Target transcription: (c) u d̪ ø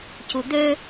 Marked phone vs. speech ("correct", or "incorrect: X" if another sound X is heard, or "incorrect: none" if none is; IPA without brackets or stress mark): correct